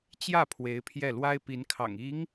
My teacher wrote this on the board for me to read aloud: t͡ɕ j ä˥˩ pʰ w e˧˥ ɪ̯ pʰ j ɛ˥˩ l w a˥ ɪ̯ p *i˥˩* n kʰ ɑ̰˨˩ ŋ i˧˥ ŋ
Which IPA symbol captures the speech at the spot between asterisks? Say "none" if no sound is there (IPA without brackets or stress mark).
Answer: i˧˥